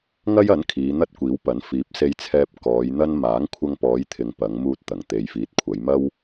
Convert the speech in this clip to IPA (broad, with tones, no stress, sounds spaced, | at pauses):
ŋ ɐ˥ j ɐ˨˥ n kʰ iː˨˧ n̪ ɐ˥ t̚ kʷ iː˨˥ w p ɐ˨˥ n f iː˨˥ p̚ s e˧ j t͡sʰ ɛː˧ p̚ k ɔː˨˧ j n̪ ɐ˥ n m aː˨˥ ŋ kʷʰ ɐ˧ ŋ p ɔː˨˧ j t̪ʰ ɪ˨ ŋ p ɐ˨˧ ŋ m uː˧ t̚ t̪ ɐ˨˩ ŋ t̪ e˨ j f iː˨˥ t̚ kʷʰ ɐ˨˧ j m ɐ˥ w